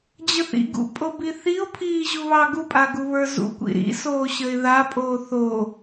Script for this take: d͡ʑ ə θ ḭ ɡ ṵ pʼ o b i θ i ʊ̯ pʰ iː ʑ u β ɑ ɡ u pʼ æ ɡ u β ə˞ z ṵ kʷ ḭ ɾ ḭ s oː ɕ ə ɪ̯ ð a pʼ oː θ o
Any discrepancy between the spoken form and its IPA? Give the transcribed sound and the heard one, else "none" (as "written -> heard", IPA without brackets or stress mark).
æ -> a